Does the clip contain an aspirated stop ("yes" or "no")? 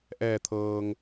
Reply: yes